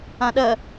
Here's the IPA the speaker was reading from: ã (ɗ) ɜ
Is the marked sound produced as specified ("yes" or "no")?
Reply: yes